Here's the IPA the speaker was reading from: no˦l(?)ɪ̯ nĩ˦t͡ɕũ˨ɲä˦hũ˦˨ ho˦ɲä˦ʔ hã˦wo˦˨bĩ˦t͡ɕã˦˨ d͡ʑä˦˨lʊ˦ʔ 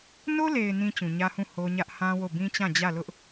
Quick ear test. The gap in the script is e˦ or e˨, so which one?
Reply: e˨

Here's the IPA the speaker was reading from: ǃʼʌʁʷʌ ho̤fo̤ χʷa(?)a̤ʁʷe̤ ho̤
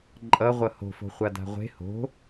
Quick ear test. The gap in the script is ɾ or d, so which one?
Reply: d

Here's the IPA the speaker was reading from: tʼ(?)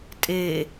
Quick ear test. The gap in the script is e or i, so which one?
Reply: e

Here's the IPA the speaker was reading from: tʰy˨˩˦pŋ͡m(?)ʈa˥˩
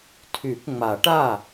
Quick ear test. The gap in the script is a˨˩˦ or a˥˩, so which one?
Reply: a˨˩˦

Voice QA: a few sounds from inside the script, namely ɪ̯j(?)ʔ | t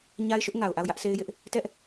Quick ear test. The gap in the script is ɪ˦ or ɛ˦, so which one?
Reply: ɪ˦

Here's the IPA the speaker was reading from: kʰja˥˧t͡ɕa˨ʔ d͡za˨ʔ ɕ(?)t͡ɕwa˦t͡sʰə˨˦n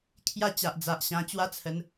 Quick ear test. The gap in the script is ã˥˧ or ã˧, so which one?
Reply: ã˧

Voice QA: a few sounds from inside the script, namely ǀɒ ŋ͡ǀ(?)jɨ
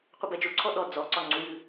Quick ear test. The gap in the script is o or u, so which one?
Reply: u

